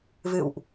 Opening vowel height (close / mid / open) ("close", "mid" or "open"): close